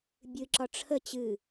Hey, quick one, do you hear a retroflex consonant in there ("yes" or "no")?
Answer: yes